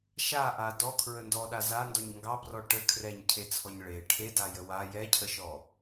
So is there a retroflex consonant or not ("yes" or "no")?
yes